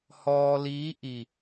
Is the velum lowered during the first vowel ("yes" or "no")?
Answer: no